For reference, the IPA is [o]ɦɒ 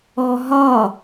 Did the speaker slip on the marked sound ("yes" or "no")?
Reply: yes